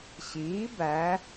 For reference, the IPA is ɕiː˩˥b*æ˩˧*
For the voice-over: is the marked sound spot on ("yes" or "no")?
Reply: yes